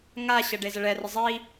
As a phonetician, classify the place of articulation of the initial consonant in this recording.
velar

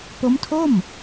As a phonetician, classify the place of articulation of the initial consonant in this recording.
labial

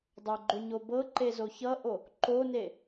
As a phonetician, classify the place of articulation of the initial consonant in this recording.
alveolar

